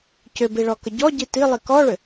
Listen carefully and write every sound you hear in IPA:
c ʏ b i ɭ ɔ k ə ɟ ɔ ɟ i t i lˠ i k ɔ ɭ ʏ

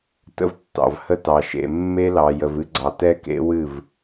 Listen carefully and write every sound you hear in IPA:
t ə̰˦ v tː ɑ̰˨ v h ə˦ t ɑ˨ ʃ ḛ˨ mː e˦ l ɑ˨ j ə˨ v ɨ˦ ɡ͡ǀ ɑ˨ t ɛ˦ k ḛ˦ w ɨ˦˨ v

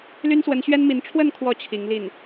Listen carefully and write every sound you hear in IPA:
l y˥ n s w ə˧˥ n ɕ ɥ ɛ˥ n m i˧˥ n ʈ͡ʂʰ w ə˥˩ n kʰ w ɔ˧˥ t͡ɕʰ i˧˥ ŋ l i˥˩ n

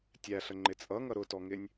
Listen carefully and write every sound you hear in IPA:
tʲ æ ɬ ə ŋ͡ǃ ɪ t͡sʼ ʌ ŋ ʌ ɾ ʊ t ɔ ŋ ɪ nʲ

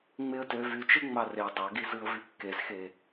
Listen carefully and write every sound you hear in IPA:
ŋ͡m e ə̯ t ø v y t͡ʃ ɯ ŋ͡m ɑ r e dˤ ɑ ɡ i z ɯ ə̯ v y kː e z x e

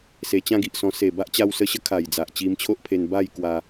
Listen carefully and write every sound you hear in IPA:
s e˨˩ t͡ɕ ã˥˧ ɡ i˨ ʔ s ɔ̃˧ s e˨˩ b a˦ ʔ t͡ɕ a˧ w s ə˧ ɕ ə˦ kʰ a˨˩ j d͡z a˨ ʔ t͡ɕ i˧ m t͡ɕʰ o˦ ʔ pʰ e˧ n b a˥˧ j k w a˧

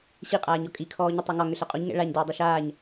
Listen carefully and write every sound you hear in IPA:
ɕ i qʼ aː ɲ ɔ kʼ i kʰ ɔː ɲ ɘ tˤ ɘ ŋ ɒ ŋ ʏ ɬ ɛ qʼ o ɲ ŋ ɛ̰ ɭ a ɲ d oː dˤ ɛ ʃ aː ɲ

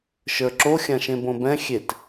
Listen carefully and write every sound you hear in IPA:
ʃ ə˞ ǁ o xʲ ã ʃ ẽ b õ b ɛ̃ xʲ e t

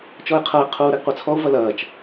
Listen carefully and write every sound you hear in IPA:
t͡ʃ ɔ e̯ qʰ ɐ e̯ qʰ uː ɾ ɛ ɡ qʷ ɛ t͡sʰ ɔ o̯ v ɐ l ɐː t͡ʃ

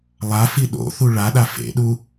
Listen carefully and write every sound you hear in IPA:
lˠ a f i ɗ o̰ θ u ɭ a ɗ a f ḛ ɗ u

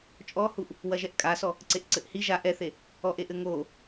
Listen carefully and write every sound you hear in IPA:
t͡ʃʼ ɔ h u ʔ | w ɐ ʒ ɛ ʔ kʼ a s ɔ | ǀ e ʔ ǀ ɘ ʔ h i ʒ a ʔ ɛ θ e | ɔ ʔ e ʔ ɘ ŋ o

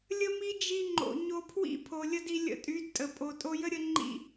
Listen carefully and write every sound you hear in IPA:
lʲ ə˦ m i˦ d͡ʒ i˧ ŋ͡ǃ o̰˨ ɲ o˧ pʰ w ḭ˦ pʰ o˨ lʲ ə˦ d i˧ lʲ ə̰˧ tʼ y˨˦ d tʼ ə˨ pʼ o˨ tʼ o˧ j ə˦ ɾʲ ə˧ ŋ͡ǃ ḭ˦

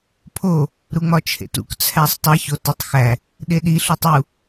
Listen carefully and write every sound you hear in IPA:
pʰ o | ɾ u ŋ͡m ɒ t͡ʃʰ ḛ t ṵ k t͡sʰ æ sˤ tˤ i ç o t u tˤ x æ | ɗ e ɗ i ɬ u tˤ u

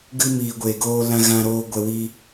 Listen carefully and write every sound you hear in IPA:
ɡ ɨ˦ m iː˧ ɡʷ e˧ ɡ oː˦ l ã˦ ɣ ã˦ ɾ oː˦ ɡʷ ɛ˦ w i˦

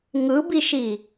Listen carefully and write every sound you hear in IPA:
ŋ ɯ b i ʃ i

